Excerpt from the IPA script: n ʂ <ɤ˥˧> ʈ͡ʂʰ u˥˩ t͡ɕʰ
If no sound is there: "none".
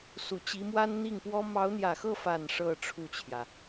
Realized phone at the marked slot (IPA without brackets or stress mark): ɤ˥˧